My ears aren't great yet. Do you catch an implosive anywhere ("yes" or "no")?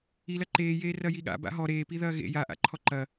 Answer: yes